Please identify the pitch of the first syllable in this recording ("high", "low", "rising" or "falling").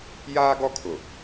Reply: high